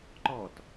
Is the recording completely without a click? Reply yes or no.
no